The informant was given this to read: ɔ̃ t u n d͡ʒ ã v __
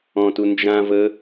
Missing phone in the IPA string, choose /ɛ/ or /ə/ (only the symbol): ə